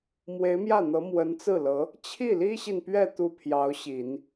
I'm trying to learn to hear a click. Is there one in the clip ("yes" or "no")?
no